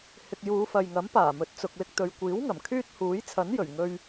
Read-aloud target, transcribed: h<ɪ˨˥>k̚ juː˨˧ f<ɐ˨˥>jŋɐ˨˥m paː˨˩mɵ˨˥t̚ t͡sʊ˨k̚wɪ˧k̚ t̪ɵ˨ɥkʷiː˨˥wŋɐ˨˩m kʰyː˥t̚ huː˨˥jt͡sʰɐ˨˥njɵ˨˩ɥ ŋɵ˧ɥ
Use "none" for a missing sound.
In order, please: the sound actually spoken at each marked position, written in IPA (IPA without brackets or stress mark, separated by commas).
ɪ˧, ɐ˨